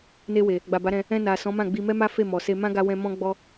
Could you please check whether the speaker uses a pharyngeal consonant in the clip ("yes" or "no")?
no